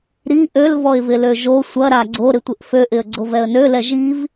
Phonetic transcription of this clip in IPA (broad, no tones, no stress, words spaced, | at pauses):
ɾi ʔøl vɔɪ̯vɪløʒo sʷɐɾa ɡ͡ǀoɾɪtʷɪʔ føʔɪə̯ ɡ͡ǀovɛə̯nølɛ ʒiv